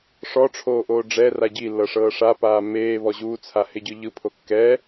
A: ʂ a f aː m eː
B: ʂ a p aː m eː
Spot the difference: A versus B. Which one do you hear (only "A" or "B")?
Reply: B